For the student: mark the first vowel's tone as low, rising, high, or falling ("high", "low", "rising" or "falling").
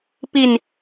falling